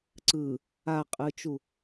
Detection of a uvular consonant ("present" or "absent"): present